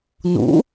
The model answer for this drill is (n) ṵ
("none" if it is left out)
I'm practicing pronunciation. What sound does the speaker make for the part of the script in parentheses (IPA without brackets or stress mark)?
n